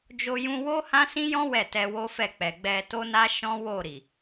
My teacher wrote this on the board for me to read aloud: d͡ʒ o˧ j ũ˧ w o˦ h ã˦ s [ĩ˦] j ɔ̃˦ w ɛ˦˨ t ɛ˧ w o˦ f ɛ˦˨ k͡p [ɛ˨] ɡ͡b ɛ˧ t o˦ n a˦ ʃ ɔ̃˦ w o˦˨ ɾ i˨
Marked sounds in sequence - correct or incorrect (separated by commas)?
correct, correct